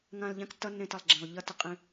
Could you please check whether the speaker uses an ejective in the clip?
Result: yes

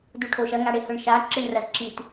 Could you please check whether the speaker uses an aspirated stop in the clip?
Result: yes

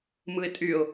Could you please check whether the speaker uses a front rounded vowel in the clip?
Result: yes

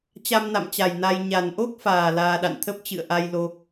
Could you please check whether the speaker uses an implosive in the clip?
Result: yes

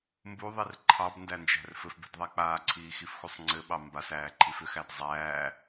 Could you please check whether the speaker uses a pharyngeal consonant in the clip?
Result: no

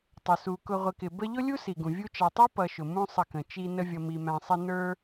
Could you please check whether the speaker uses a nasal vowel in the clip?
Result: yes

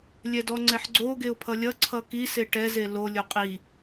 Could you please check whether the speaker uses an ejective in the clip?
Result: yes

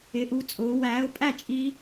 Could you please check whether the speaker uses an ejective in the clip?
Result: yes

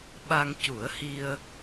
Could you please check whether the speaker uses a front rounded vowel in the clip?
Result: no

